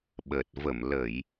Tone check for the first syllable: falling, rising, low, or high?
low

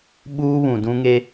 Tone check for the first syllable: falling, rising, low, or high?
high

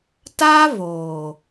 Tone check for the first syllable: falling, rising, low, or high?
high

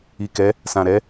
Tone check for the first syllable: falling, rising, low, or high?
low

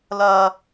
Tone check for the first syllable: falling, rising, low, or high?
high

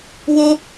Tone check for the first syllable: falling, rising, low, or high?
high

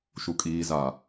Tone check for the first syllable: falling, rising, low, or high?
low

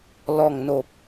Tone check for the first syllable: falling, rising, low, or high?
low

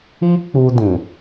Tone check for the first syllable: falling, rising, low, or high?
high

